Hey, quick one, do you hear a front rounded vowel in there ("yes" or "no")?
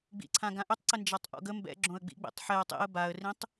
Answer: yes